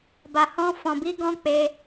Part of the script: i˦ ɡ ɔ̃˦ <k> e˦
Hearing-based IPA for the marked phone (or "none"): k͡p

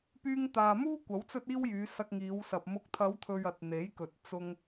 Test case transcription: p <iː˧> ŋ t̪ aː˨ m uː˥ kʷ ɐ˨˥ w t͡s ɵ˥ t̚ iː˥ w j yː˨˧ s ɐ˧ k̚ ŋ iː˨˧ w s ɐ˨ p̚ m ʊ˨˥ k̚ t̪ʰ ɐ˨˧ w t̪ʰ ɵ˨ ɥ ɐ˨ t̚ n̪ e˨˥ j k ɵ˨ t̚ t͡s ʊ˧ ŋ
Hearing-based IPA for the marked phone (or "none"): yː˧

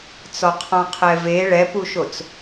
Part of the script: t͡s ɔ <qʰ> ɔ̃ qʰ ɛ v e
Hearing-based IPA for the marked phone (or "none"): qʰ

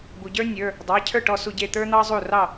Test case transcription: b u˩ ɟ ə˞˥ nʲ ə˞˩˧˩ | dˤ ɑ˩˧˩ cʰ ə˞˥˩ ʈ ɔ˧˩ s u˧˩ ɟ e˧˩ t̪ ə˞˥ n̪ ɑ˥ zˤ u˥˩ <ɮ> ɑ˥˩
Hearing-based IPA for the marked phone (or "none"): r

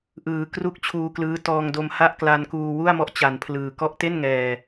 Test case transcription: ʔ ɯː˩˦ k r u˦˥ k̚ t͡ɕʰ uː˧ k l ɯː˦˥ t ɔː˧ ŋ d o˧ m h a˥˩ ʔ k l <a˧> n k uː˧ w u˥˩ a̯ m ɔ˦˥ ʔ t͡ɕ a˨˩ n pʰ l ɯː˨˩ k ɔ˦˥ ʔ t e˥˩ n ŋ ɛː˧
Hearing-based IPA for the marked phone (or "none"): a˧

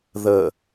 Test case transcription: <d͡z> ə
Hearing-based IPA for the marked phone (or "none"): ð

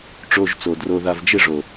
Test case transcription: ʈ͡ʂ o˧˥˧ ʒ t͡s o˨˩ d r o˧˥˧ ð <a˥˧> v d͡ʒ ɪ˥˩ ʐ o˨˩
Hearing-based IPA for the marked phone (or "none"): a˥˧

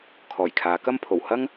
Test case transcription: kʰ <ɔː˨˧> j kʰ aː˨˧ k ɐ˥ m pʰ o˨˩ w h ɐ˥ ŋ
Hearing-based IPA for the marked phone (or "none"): ɔː˨˩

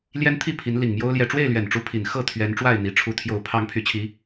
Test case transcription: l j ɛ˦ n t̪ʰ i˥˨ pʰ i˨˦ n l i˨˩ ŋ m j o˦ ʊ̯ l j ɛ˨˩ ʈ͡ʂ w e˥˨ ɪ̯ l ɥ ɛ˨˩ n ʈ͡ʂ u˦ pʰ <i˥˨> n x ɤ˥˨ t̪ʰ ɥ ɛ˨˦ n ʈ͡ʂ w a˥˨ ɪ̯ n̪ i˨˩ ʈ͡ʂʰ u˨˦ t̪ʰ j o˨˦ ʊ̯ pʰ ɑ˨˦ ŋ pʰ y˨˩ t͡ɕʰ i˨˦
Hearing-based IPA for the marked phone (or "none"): i˨˩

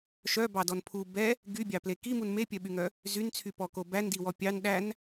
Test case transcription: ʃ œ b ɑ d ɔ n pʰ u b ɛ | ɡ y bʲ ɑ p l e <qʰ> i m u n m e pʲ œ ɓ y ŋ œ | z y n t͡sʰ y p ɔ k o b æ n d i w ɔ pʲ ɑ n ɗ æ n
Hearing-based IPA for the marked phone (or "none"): k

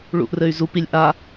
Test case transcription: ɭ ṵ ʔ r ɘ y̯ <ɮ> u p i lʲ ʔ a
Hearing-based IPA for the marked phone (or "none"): z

